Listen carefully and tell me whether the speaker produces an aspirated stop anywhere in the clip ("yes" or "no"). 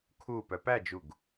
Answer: yes